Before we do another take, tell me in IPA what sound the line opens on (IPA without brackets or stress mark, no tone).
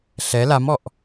ɬ